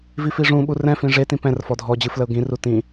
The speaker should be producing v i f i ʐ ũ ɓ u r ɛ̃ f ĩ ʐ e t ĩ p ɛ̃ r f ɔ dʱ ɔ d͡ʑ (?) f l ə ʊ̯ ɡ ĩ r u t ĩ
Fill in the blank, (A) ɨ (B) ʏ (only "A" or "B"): A